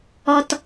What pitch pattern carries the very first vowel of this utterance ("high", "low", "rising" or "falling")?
low